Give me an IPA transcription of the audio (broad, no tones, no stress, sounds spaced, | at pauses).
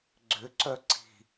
ɡ͡ǀ ʏ ǀ œ ǀ i̤